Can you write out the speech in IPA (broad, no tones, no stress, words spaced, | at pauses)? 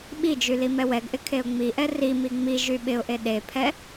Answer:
ɓid͡ʒy limɛwɛɡʔɪ kʰeʊ̯ŋ͡miʔɛ rimi ŋ͡mi ʒyɓɪʊ̯ʔe ɗepʰɛ